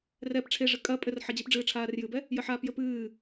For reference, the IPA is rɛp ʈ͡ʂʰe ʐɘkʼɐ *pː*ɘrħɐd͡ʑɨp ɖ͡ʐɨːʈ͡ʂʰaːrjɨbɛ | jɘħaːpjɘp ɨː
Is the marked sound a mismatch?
yes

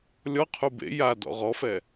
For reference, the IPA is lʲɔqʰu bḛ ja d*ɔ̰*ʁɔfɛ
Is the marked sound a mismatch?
no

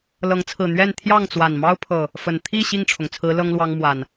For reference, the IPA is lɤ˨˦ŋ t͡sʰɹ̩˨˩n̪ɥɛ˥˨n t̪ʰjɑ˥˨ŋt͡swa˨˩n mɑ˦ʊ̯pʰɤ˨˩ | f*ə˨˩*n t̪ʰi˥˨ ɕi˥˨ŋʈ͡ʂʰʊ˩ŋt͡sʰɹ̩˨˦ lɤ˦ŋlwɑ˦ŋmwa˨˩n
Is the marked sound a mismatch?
no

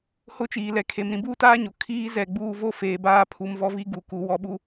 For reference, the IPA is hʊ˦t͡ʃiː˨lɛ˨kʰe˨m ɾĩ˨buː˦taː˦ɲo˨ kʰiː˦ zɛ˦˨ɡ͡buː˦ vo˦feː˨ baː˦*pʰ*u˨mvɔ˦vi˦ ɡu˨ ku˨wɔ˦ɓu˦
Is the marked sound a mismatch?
no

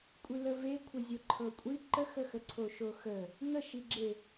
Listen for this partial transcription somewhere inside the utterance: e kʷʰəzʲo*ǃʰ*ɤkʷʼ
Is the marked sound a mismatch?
no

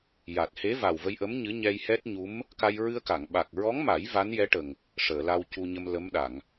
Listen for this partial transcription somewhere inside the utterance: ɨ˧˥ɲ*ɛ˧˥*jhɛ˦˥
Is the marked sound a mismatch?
yes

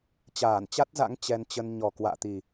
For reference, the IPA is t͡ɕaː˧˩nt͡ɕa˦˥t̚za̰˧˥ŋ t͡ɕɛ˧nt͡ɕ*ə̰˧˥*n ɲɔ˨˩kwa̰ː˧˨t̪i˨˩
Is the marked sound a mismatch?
yes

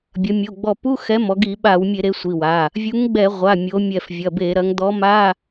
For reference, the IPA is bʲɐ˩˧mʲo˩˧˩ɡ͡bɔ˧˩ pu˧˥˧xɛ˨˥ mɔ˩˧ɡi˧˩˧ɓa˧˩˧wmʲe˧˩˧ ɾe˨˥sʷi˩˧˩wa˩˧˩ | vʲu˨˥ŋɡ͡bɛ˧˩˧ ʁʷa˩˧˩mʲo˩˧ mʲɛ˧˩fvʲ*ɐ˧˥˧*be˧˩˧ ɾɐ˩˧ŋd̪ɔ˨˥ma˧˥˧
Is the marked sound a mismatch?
yes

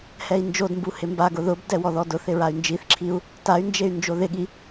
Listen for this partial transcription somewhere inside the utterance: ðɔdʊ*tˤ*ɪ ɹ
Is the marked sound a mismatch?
yes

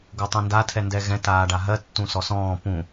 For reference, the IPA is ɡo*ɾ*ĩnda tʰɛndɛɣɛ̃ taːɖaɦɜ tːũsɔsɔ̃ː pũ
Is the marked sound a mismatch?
yes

